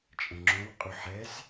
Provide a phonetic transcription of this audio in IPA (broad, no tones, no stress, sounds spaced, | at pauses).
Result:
t͡ʃʼ ə̃ ŋ͡ǁ õ w qʼ u ħ ɛ z